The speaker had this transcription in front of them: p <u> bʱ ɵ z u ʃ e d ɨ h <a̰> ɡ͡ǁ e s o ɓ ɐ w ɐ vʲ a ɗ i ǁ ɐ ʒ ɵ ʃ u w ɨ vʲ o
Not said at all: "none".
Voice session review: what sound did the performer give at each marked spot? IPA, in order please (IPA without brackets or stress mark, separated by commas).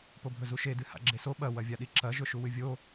o, a̰